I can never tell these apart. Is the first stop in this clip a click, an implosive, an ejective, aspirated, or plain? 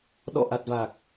implosive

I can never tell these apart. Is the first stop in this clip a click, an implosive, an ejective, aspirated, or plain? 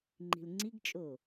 click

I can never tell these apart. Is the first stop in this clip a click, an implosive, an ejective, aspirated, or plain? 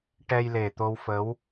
plain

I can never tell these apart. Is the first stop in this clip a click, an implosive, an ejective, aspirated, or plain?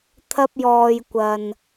aspirated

